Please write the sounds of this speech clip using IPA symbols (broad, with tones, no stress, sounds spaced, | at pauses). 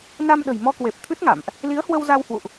n a˧ m ɗ ə̤˨˩ j m ɔ˧ k w e˨˩ p̚ t̪ʰ ɨ˦˥ t̚ ŋ a̰˧˨ m ʔ | l i˨˦ ə̯ h w ə˧ w z a˧ w h w ṵ˧˨ ʔ